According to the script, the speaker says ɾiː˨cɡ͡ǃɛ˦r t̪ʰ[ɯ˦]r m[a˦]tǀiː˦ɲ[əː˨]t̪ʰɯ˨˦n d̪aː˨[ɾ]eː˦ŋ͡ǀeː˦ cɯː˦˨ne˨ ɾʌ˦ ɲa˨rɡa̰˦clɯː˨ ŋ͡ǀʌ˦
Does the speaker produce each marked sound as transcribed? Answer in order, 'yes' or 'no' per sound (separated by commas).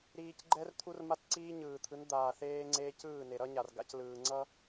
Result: no, yes, no, no